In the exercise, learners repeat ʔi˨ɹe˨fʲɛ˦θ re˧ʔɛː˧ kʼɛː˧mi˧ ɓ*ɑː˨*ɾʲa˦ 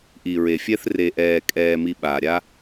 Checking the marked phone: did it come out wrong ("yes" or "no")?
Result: yes